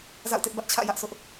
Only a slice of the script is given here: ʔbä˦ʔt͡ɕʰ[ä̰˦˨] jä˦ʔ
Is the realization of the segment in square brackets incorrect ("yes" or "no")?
no